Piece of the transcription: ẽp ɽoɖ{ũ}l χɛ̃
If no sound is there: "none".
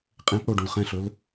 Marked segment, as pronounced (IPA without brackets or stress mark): ũ